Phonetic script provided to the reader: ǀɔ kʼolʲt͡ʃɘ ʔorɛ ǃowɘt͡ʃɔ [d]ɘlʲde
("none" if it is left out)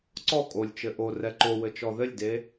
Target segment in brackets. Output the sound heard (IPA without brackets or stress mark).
ð